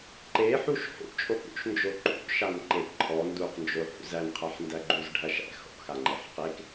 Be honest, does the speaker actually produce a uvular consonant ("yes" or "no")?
yes